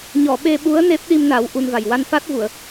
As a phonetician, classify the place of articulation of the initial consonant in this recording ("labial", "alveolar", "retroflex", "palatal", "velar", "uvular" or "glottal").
palatal